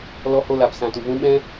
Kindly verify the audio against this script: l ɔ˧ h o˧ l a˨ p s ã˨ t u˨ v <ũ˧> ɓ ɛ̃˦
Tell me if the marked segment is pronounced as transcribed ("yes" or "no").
yes